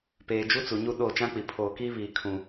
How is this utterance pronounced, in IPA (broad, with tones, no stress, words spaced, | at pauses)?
peː˨ d͡ʒu˦t͡su˨ ɲu˦ɗoː˦˨t͡ʃã˦k͡pi˨ pʰoː˨kiː˦ βiː˨kʰũ˨